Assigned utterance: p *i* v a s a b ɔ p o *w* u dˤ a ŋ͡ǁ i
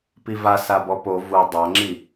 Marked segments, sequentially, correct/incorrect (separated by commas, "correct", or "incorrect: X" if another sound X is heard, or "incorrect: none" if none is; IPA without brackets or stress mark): correct, incorrect: v